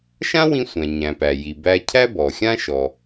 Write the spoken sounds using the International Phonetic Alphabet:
ʃ ã˥ w ĩ˧ sʷ æ̃˩ ɲ æ̃˩ p æ˩ j i˩ b æ˧ cʰ æ˥ b ɔ˩ xʲ ã˥ ʃ ɔ˩

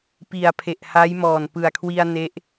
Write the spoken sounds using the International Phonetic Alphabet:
p i˨˩ a̯ pʰ e˨˩ ʔ h a˦˥ j m ɔː˨˩ n p ɯ˨˩ a̯ kʰ w i˧ a̯ n e˦˥ ʔ

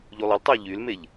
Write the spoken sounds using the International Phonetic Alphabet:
ʎ u lˠ ə l tˤ ə ʊ̯ ʎ y l m e ʎ

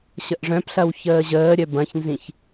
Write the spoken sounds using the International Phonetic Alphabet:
ɕ ə ʔ ʐ œ̃ p ɬ ɐ w ç əː ʑ əː ɾʲ œ b ɐ̃ ç n z ĩ ç

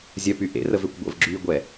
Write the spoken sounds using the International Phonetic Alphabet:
zʲ œ p y ʔ ḛ r ə v ø kʷ ɡʷ ə̰ v ɡ͡ǁ yː ɡʷ ɛ

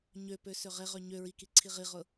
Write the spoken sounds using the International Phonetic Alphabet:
ɲ ø p ø s ø ʁ e ʁ ø ɲ ø ɹ i k i ǀʰ i ʁ i ʁ ʊ

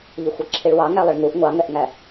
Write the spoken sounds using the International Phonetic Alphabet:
ʎ ɪ xʷ ʌ ǁʰ i ɭ w ɑ ŋ æ lˠ ɪ ɭ ŋ u ʔ ŋʷ ɑ ŋ ɛ ʔ ŋ æ

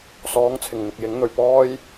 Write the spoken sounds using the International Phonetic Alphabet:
s ɔː˨˥ ŋ t͡sʰ ɪ˨˩ ŋ n̪ ɪ˨ k̚ j ɪ˨˥ ŋ n̪ ɵ˨ ɥ p ɔː˥ j

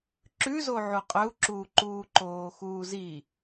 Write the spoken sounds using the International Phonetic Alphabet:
ǁ ʉ z o ʕ u qʼ ɵ u̯ ǁ uː ǃ uː ǃ oː x uː z i

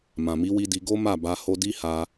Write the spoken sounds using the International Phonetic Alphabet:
m ã˨ m i˨˦ w i˧ d i˧ ɡ o˦ m a˦˨ b a˧ h o˧ d i˦ h a˧

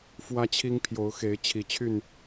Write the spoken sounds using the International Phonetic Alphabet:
f w ä˦ t͡ɕʰ i˦ ŋ pʰ j o˨˦ ʊ̯ x e˨˦ ɪ̯ t͡ɕʰ i˨˩ t͡ɕʰ y˥˨ n

